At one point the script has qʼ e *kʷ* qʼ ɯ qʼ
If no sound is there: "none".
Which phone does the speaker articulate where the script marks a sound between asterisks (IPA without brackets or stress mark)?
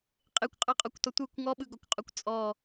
kʷ